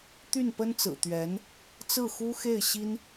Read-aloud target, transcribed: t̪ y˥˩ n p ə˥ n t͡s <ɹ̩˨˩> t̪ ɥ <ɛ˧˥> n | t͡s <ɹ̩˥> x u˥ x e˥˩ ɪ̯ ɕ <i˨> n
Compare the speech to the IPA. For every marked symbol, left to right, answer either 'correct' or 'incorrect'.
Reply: correct, correct, incorrect: ɹ̩˥˩, incorrect: i˥

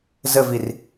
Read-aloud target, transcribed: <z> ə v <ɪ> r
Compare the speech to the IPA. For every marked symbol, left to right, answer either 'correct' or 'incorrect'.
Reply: correct, incorrect: i

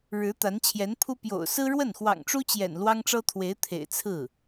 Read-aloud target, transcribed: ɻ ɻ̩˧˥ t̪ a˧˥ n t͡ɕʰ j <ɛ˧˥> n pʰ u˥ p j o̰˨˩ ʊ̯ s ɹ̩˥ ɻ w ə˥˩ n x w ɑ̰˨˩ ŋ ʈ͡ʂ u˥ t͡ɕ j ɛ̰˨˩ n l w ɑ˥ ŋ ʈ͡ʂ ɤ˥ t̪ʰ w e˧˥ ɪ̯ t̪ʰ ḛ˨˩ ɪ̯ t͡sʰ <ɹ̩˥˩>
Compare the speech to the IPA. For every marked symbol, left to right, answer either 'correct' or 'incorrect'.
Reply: correct, correct

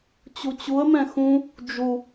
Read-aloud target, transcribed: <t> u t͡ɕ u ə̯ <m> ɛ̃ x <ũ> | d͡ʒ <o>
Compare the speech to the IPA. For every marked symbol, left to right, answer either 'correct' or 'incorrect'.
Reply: incorrect: t͡ɕ, correct, correct, incorrect: u

